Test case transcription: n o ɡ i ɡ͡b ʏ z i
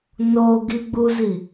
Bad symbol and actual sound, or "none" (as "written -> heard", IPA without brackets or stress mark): ʏ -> u